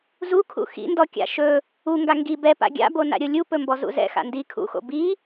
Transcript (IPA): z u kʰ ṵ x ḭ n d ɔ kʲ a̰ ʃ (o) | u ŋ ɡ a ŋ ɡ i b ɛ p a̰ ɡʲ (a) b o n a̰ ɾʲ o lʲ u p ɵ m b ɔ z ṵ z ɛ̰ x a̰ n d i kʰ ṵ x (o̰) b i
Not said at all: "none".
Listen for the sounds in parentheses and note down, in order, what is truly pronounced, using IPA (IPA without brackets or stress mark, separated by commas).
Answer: ɵ, a̰, o̰